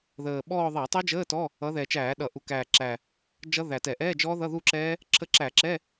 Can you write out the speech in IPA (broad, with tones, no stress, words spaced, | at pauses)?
ðəː˨˩ɓɔː˥˧ ðˤæ˧˩˧tˤi˦˥d͡ʒəː˧˥˧tɔ˧˥˧ | ʌ˨˦ðɛ˨˩t͡ʃæː˧˩˧ ɗʌ˧˩˧ ʔu˨˩ kæː˨˩ǁæ˨˩ | d͡ʒʌ˦˥ðæ˨˩tɛ˧˩˧ ʔɛː˧˥˧d͡ʒɔː˦˥ðʌ˧˥˧ ðu˥˧ǁɛː˦˥ | ǁʰə˦˥ǁæ˧˩˧ ǁɛ˧˥˧